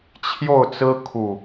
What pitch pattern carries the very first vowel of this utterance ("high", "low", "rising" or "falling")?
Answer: falling